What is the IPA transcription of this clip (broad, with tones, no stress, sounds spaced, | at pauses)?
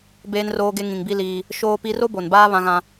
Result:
b eː˦ n r oː˦ ɡ e˦ ŋ ĩ˨ ŋ b i˦ l iː˦ | ʃ oː˦ p i˦ r o˦ b o˨ n b aː˦ β ã˦ ɣ ã˦